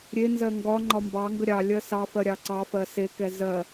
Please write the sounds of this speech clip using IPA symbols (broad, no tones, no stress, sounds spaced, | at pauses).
ɾʲ e n z ɜ ŋ ɡ ɒ ŋ͡ǃ ɒ m b ɑ ŋ ɡ ə ɾʲ ɑ lʲ ɜ s ɑ f ɜ ɾʲ ɑ ǀ ɑ f ɜ s e k ɛ z ɜ